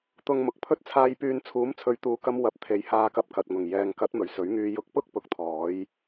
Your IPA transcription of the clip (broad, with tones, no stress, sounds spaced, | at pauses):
t̪ ʊ˧ ŋ m ʊ˨ k̚ pʰ ɵ˥ t̚ t͡sʰ aː˧ j p yː˧ n t͡sʰ uː˨˥ m t͡sʰ ɵ˨˧ ɥ t̪ uː˨ k ɐ˧ m w ɐ˨ p̚ t̪ʰ e˨˧ j h aː˧ k ɐ˧ p̚ k ɐ˨ t̚ ŋ ʊ˨˩ ŋ j ɛː˨ ŋ k ɐ˨˥ t̚ m ɵ˨˩ ɥ s ɵ˨˥ ɥ ŋ yː˧ j ʊ˨˥ k̚ p ʊ˥ k̚ p ʊ˨˥ k̚ t̪ʰ ɔː˨˥ j